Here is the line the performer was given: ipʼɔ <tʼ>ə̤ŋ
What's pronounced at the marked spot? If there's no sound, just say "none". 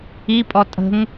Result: tʼ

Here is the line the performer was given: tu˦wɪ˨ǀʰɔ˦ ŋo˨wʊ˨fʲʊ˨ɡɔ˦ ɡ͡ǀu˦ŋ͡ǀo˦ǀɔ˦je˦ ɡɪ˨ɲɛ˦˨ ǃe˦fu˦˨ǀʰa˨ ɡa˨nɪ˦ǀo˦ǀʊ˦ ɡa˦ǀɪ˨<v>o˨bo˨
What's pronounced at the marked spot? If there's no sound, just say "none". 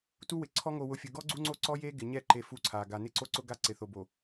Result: θ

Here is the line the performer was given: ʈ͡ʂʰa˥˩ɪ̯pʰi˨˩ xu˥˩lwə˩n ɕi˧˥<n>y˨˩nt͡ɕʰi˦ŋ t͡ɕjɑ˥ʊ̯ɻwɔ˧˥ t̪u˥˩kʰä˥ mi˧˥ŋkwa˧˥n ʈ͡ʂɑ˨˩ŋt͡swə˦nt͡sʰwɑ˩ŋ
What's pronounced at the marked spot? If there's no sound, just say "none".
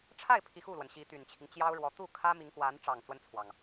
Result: t̪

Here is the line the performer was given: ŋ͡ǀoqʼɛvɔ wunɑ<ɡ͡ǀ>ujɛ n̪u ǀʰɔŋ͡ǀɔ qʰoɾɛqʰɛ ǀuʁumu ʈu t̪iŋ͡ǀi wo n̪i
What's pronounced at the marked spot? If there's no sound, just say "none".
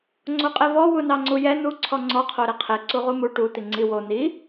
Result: ŋ͡ǀ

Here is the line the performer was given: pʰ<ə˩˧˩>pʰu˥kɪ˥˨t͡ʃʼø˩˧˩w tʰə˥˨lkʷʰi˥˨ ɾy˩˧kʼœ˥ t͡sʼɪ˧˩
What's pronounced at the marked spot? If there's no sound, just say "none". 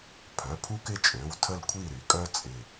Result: œ˩˧˩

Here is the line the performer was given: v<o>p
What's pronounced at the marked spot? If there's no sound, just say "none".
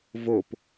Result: o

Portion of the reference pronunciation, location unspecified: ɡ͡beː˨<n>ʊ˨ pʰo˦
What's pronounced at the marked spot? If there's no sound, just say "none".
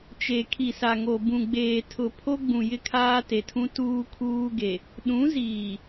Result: tʰ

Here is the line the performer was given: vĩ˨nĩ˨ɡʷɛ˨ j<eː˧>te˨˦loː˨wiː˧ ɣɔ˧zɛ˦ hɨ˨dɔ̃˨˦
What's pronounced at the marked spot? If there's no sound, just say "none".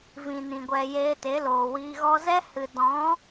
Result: eː˧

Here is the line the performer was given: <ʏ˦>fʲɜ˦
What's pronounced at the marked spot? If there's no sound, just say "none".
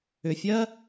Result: ʏ˨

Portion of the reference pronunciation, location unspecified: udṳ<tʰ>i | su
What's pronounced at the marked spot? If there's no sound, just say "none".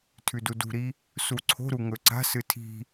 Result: ɾ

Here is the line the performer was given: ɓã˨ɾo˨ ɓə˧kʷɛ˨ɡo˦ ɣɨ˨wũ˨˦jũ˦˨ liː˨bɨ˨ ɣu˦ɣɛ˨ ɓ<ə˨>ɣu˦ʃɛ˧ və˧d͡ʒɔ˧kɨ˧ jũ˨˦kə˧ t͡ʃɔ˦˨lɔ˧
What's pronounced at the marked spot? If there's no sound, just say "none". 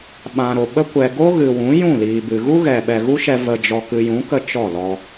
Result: ɛ˨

